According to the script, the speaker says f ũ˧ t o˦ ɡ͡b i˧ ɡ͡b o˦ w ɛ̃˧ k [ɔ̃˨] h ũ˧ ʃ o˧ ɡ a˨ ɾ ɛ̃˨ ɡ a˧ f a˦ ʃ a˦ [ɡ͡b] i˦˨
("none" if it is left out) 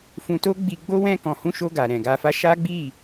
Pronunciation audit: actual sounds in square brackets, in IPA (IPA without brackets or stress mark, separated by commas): ɔ̃˨, ɡ͡b